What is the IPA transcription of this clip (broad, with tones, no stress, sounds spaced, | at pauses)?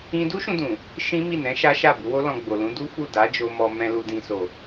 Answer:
ĩ˦ d u˦ ʃ ũ˧ d ũ˨ | ʃ ĩ˦ m i˦˨ n ɛ̃˨˦ ʃ a˦ ʃ a˦˨ b u˨˦ w o˦ l ɔ̃˧ ɡ͡b o˨ l ũ˨˦ d u˦ f u˦˨ d a˨˦ d͡ʒ o˧ m ɔ˧ m ɛ̃˧ l u˨ d ĩ˨ s o˨